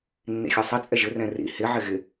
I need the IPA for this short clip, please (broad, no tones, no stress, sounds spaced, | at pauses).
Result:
nː ḭ xʲ ɒ sˤ i t͡sʼ ɛ ʒ ɪ r ɛ̃ r ḭ h ɪ ʕ ɪ ɣ ɪ